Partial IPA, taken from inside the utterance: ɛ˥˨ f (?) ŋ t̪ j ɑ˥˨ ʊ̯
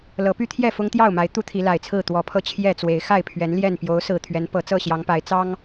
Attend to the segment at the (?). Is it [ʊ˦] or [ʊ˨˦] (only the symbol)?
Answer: ʊ˦